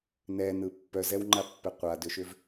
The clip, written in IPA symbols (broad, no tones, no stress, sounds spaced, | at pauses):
n ɛ n ɯ pː œ z ɛ w ŋ͡ǃ a pː ɛ qʷ a d ʏ ʃ ʏ v